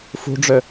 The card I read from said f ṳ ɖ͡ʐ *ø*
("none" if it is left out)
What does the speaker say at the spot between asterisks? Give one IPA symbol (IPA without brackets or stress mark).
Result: ø